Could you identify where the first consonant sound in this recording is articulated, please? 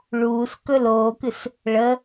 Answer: retroflex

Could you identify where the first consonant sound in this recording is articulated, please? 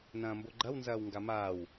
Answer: alveolar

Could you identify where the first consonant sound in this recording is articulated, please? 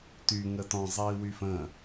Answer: alveolar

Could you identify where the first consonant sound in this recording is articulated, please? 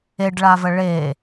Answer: retroflex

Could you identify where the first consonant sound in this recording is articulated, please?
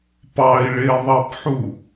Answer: labial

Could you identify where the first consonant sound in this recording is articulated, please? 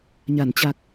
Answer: palatal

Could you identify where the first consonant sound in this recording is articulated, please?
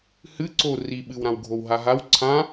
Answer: glottal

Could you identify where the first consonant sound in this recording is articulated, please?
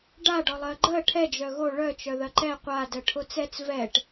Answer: retroflex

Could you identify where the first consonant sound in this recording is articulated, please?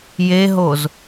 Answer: palatal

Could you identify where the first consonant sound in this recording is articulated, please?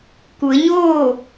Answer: velar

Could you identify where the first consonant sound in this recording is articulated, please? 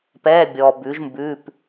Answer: labial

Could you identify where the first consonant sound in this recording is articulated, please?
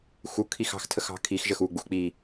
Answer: velar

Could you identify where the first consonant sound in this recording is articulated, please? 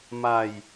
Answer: labial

